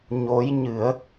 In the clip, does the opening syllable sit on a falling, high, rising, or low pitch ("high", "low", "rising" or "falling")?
rising